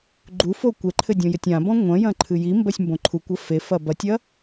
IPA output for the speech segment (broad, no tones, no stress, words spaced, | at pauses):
ɡ͡ǃufo kʷɛǃʰɘdʲõjɘtʲ ãbɔ̃ ŋʷɐ̃jɐ̃ǃʰɨ jimbɐsʲmbõ ǃʰukʷɐ fefɐ bɐtʲɐ